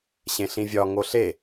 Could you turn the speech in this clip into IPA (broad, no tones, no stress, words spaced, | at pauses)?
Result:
ɕẽɬĩvʲɒ ŋoɬe